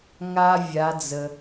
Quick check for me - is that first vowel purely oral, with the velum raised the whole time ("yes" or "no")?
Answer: yes